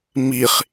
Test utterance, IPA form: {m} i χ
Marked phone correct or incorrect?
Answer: correct